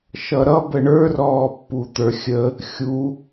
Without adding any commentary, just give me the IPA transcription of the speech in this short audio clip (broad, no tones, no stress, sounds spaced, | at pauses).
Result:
ʃ ʌ ɾ ʌ b ə ɳ ə˞ r ɔː pː u t̪ ə˞ xʲ ə | xʲ u